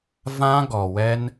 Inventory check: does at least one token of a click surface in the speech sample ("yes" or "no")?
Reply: no